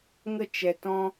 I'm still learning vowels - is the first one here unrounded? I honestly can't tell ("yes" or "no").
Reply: yes